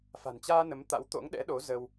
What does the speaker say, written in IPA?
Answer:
fa̤˨˩nt͡ɕaː˧ nə˨˦mt̪a̰˧˥wt̪o̰˧˥ŋ ɗɛ̰˧˥ɗo˨˦ zə˧w

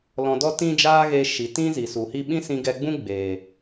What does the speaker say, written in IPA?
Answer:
lɔ̃˧dɔ˦ tĩ˦d͡ʒaː˦ɣe˧ ʃi˨tĩ˦ zi˨su˨hi˦ ɓĩ˦sĩ˧ɡɛ˧ɡ͡bũ˦ ɡ͡beː˨

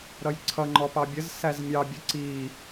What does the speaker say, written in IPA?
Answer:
ɾʌjǀʰʌ ŋ͡ǃɔpɑbʲəz sæzmʲɑ bʲəǀi

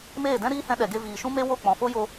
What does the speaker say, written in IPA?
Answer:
meː˦˨dɛ̃˦ɾiː˦hɛ̃˧ ɗɛ˨ɡe˧ viː˨ʃũ˦me˦wo˦˨ k͡pɔ̃˨fo˦jo˧

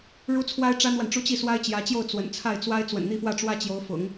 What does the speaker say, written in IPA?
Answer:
ɻu˥t͡sʰwa˥ɪ̯ ʈ͡ʂa˥nwa˨nʈ͡ʂu˥˧ t͡ɕi˥˩swa˥ɪ̯t͡ɕjä˧˥t͡ɕjo˥˩ʊ̯ t͡swə̰˨˩nt͡sʰa˥˩ɪ̯t͡swa˥ɪ̯ t͡swə̰˨˩nn̪i˥˧fwä˥˩ ʈ͡ʂwä˥t͡ɕjo˧˥ʊ̯fʊ̰˨˩˦ŋ

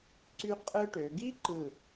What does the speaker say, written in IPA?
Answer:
ǀy˥ qʼɯ˧ʈø˩˧ɡi˥ ǃɯ˧˩

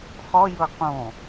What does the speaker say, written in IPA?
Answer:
χɔjɤ qõ

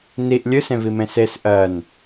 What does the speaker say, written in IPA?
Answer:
niʔ lʲɨsẽvimẽ ses ʔɜn

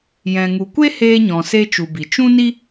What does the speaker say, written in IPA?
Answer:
jɛ̃˨ŋu˨kʷe˦ heː˧ɲɔ̃˨se˧ t͡ʃu˨bi˨ t͡ʃũ˦ni˦

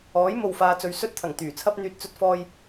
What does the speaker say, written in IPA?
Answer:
ɔː˨˥jmo˨wfaː˨ t͡sɵ˨˥ɥsɵ˥t̚t̪ʰɐ˨˩ŋ t̪yː˨˩t͡sʰɐ˥p̚ n̪yː˨t̚t͡sɵ˧t̚fɔː˧j

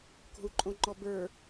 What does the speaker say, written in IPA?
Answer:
ko̤u̯ǃʼõŋ͡ǃɔbə˞

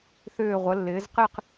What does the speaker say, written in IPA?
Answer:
θʏː˧˩ʁʷə˩˧lːɪː˩˧z qɪ˥˧q

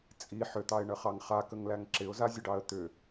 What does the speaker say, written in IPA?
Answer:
t͡sʼi ħʏt̪ɑɪ̯ɳəχɑŋ χakəŋlæŋ ǁɪʊ̯zazʲəɖɑə̯ t̪ʏ

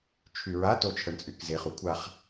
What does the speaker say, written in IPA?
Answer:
t͡ʃʰyɹa tot͡ʃʰəɳt͡sʼykzeχ ukʷʰaχ

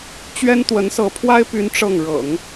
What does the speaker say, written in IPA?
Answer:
t͡ɕɥɛ˥nt̪wə˧˥nsɤ˧˥ pʰwa˥ɪ̯py˧˥n ʈ͡ʂɤ˥˩ŋ ɻɤ̰˨˩˦ŋ

